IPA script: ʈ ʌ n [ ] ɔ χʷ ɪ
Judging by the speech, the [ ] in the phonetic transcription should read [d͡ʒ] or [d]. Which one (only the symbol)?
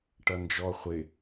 d͡ʒ